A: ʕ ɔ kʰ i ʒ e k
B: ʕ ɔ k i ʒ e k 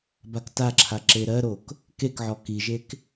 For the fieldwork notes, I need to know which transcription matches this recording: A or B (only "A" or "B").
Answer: B